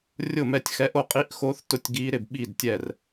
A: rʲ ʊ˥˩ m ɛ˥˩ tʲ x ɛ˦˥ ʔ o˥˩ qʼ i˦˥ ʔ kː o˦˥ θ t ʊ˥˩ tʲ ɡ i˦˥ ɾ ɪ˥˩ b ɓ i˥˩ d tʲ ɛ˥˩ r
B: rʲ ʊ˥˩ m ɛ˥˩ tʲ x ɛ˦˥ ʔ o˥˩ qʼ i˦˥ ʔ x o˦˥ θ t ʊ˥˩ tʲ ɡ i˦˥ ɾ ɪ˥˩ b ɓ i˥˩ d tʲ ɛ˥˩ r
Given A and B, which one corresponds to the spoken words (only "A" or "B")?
B